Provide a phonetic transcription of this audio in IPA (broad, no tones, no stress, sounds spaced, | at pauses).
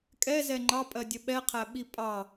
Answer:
kʼ ɛ z ɛ ŋ͡ǃ ɑ pʼ ɜ dʲ ə ɓ ɛ qʰ æ ɓ i pʼ ɑ